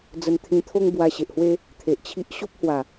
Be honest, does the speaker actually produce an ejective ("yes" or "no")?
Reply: no